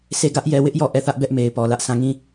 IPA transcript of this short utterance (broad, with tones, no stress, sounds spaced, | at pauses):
s e˦˨ ɡ ä˦ ʔ j ɛ˦˨ w ɪ˦ ʔ j ɔ˦˨ ʔ ɛ˦˨ θ ä˦ ʔ b ɛ˦ ʔ m e˨ ɪ̯ p ɔ˨ l ä˦ ʔ sʰ ã˦˨ ŋ ĩ˦˨